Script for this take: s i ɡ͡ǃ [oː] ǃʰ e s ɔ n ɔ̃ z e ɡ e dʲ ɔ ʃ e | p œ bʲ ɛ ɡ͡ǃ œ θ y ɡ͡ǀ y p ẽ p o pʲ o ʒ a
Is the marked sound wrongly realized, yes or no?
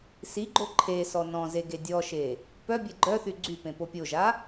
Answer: yes